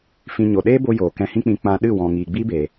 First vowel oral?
no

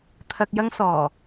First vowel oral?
yes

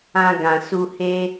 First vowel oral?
no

